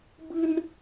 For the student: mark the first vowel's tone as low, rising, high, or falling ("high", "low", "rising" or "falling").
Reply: high